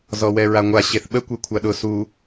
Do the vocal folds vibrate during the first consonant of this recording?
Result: yes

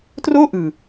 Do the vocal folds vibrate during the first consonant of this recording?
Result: no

